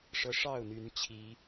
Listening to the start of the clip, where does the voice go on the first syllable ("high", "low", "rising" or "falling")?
high